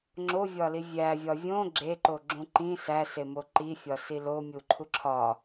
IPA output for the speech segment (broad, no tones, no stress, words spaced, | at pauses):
ŋ͡ǁovʲɒli vʲævʲɒ vʲõ ɡ͡ǁeǃoɡ͡ǁũ ǃĩ sæsemo ǃifʲɒsi lomʲuǃʰu ǁʰɒ